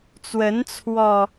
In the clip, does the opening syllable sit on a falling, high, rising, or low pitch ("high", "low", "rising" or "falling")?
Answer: rising